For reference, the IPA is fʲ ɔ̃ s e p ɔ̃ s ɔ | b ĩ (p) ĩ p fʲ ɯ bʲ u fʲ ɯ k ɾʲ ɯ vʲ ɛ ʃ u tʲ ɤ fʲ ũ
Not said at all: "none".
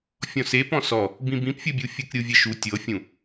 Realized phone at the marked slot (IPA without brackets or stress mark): b